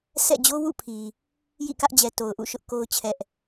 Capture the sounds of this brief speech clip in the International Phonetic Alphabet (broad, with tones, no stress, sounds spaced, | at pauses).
sʰ ɛ̰˦˨ d͡ʑ o˦ w ṵ˦˨ pʰ i˨ | j ḭ˦˨ k ä˦ ʔ d͡ʑ ɛ˨ t o˨ ʊ̯ ʔ ṵ˦˨ ʃ ʊ˦ ʔ k o˦ ʊ̯ t͡ɕʰ ɛ˦ ʔ